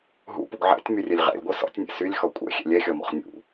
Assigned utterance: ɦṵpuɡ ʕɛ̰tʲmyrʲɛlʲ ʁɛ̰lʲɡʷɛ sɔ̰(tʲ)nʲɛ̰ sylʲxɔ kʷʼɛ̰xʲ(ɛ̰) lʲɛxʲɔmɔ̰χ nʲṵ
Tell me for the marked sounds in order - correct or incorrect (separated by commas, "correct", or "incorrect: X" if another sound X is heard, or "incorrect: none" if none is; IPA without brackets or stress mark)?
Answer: correct, correct